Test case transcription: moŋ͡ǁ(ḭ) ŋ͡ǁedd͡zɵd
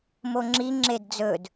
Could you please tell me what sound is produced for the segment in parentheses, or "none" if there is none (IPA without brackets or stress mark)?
i